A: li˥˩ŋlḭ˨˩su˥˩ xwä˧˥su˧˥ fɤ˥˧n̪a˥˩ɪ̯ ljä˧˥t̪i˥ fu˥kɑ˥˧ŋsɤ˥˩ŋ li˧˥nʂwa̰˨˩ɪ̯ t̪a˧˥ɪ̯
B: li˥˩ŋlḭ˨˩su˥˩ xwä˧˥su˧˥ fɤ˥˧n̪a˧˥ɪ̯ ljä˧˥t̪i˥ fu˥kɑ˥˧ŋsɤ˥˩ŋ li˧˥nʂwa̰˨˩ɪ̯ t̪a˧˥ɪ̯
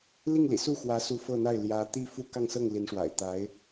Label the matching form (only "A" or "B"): A